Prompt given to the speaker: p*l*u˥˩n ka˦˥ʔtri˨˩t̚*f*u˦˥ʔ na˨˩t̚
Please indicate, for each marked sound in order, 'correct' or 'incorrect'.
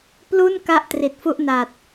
correct, correct

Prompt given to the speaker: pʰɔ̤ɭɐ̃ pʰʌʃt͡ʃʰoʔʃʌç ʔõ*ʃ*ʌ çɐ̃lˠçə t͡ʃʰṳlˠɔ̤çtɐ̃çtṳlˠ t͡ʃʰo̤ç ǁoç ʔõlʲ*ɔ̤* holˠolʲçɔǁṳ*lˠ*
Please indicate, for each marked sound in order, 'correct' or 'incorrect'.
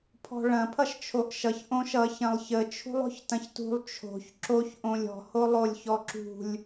correct, correct, incorrect

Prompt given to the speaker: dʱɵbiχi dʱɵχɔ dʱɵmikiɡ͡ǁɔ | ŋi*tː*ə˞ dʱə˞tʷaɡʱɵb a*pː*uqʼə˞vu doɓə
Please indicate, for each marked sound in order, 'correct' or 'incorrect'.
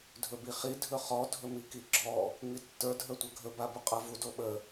correct, incorrect

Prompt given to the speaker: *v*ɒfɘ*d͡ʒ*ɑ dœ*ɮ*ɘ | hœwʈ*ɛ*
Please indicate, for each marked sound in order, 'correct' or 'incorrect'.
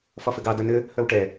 incorrect, incorrect, incorrect, correct

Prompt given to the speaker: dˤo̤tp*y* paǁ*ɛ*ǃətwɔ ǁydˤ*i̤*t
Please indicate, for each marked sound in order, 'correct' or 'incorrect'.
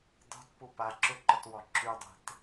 incorrect, incorrect, incorrect

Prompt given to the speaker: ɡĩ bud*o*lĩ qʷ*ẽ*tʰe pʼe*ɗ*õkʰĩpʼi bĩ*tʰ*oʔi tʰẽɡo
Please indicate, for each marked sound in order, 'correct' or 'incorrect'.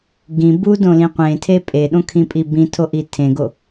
incorrect, correct, correct, correct

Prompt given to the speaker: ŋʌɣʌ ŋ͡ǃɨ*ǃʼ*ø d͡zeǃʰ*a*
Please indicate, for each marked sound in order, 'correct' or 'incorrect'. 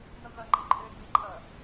correct, incorrect

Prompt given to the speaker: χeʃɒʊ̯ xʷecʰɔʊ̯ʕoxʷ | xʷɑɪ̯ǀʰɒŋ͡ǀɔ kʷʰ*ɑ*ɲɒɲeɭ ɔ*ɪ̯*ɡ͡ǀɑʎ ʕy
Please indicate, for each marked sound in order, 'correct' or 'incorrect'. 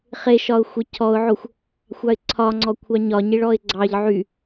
correct, correct

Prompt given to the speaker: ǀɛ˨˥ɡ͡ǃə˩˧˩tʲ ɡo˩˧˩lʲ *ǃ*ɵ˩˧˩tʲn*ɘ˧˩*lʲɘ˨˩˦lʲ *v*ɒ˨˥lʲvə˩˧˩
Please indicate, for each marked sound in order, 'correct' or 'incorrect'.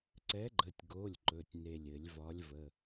correct, incorrect, correct

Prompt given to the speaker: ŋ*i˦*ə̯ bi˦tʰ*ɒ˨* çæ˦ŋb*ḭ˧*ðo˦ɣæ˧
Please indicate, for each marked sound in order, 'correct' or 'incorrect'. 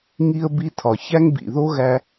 correct, correct, incorrect

